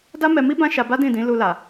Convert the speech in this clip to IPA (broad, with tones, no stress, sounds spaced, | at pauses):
d a˦ m ɛ˧ m i˦ b ã˦ ʃ a˧ b a˦ d ĩ˦˨ d ĩ˨˦ l u˧ l a˨